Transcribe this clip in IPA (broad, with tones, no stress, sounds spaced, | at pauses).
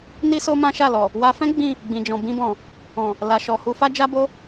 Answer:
n i˦ s o˦ m ã˦ ʃ a˦˨ l ɔ˨ | w a˧ f ɛ̃˦ ɡ͡b ĩ˦˨ | ɡ͡b ĩ˨ d͡ʒ ɔ̃˨ b ĩ˧ b ɔ̃˨ | ɔ̃˨ | l a˨ ʃ ɔ˨ h u˧ f a˦ d͡ʒ a˦ b o˦